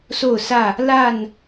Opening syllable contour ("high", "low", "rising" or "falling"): falling